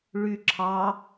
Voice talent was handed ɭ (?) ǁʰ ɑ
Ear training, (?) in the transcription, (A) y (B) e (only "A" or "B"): A